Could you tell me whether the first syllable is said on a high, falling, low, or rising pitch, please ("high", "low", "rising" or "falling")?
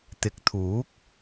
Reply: rising